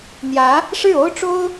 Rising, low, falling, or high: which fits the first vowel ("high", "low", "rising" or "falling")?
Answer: rising